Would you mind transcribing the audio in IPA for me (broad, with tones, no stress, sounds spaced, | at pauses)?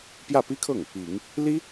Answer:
p j ä˥˩ p i˥ kʰ ɤ˥˩ ŋ | i˨˩˦ ŋ | l i˥